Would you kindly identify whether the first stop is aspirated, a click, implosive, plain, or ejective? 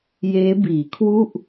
plain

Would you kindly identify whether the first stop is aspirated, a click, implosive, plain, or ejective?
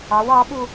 implosive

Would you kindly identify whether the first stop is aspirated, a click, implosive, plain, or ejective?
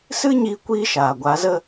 plain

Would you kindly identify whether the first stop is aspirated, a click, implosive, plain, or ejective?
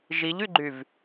click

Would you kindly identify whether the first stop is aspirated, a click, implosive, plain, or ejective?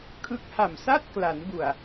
aspirated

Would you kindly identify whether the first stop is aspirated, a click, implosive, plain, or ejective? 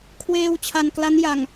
aspirated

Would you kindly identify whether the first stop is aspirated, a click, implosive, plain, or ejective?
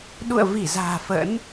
implosive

